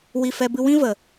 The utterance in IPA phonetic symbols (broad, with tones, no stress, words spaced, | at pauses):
wi˦˨fɛ˦bɨ˦ wĩ˦və˨